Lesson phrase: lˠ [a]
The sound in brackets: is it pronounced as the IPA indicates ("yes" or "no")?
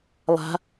no